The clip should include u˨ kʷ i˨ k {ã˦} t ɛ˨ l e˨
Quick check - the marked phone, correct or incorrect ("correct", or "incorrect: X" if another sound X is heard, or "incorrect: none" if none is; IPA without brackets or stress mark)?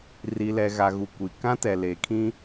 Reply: correct